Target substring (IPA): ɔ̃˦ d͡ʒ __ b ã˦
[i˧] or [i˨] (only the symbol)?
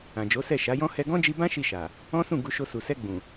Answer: i˧